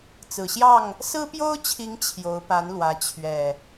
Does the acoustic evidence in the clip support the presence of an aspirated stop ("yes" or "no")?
yes